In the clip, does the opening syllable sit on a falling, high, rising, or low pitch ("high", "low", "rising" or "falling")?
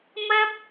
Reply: high